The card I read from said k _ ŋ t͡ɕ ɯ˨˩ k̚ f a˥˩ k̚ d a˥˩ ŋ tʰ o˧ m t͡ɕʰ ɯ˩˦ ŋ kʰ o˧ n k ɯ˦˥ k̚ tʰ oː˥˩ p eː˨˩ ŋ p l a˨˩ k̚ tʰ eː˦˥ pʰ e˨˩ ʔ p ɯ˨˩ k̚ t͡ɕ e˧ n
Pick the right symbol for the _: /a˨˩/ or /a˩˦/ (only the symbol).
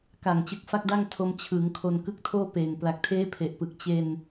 a˨˩